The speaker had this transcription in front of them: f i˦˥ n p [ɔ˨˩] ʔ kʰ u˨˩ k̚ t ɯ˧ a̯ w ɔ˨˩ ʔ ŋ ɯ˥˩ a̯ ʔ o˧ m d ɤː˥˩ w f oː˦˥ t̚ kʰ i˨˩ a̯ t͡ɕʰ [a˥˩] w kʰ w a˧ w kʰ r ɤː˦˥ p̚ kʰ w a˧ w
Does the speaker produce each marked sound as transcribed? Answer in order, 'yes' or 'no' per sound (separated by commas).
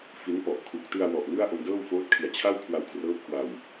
yes, yes